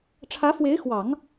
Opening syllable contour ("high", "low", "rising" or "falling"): rising